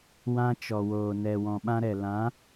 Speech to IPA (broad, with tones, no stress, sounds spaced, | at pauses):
w ã˧ t͡ʃ ɔ˨ w oː˨ n ɛ˨ w ɔ̃˨ ɓ ã˧ ɾ ɛ˨ l ã˨˦